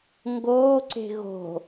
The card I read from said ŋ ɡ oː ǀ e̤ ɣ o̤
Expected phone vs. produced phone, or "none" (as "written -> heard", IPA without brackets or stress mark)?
none